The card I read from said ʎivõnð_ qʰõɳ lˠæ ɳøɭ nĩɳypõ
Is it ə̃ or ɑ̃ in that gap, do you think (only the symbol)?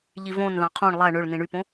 ɑ̃